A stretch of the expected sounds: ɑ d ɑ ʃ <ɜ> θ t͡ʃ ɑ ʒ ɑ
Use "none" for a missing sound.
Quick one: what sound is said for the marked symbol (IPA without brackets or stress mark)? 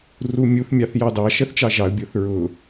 ɜ